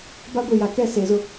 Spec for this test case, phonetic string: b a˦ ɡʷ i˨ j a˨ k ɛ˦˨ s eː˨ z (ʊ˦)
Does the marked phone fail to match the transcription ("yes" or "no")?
no